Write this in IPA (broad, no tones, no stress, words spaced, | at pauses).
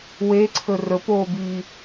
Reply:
weǀʰɵ rɵpoːbiː